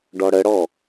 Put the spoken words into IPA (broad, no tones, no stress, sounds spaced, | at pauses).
ɖ ɔ ɽ ə ɽ ɔ